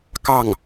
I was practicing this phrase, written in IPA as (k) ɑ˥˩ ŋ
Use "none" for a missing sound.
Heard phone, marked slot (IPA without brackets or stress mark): k